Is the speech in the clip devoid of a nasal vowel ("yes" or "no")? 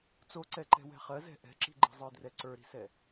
yes